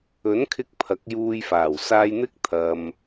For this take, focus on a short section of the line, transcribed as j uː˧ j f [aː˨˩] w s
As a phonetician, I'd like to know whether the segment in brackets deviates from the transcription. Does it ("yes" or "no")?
no